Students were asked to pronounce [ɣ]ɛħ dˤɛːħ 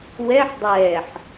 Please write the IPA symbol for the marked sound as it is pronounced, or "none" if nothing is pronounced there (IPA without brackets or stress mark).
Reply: w